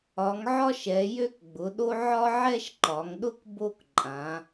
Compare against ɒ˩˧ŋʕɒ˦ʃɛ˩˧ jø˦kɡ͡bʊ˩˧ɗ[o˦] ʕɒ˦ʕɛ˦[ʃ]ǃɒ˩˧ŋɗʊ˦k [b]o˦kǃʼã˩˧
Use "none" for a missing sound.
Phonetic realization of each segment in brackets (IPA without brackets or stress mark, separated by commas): o˦, ʃ, b